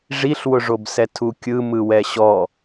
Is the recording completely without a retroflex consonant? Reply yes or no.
no